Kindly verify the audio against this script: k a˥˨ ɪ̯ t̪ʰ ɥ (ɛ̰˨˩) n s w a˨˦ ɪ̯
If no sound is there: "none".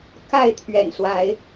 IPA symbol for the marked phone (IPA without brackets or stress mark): ɛ̰˨˩